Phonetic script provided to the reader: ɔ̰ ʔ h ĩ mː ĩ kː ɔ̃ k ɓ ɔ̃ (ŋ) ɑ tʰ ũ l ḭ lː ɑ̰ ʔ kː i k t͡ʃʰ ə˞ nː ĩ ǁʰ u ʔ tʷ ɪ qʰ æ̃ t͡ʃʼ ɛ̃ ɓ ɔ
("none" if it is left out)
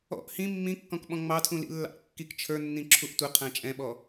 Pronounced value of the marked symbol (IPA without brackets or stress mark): ŋ͡m